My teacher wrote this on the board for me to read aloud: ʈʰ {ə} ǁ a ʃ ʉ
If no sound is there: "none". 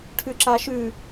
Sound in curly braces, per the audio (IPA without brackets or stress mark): ʉ